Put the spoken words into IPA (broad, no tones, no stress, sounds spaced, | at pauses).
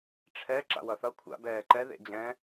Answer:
ʈ͡ʂʰ ɛ ǁ a̰ w ʌ θ ʌ kʷʰ a̰ b ɛː ǃ ɛ ð ḛ d͡ʑ ɛ̃